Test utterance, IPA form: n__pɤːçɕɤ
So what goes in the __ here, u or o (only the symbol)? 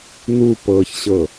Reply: u